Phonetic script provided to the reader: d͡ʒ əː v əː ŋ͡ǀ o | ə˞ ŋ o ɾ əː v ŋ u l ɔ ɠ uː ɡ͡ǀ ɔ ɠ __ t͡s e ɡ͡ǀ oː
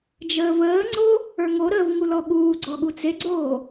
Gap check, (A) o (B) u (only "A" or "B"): B